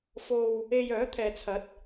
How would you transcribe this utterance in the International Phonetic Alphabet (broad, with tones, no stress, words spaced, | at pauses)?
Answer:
fo˧w | e˧jœː˨˥t̪ʰɛː˨t͡sʰɐ˨˥t̚